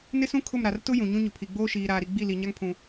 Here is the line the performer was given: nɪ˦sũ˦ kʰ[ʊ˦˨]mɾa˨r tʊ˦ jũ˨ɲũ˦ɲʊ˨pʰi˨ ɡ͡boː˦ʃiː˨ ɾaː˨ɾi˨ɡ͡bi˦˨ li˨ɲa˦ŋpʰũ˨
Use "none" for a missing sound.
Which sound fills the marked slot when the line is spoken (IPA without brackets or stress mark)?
ʊ˦˨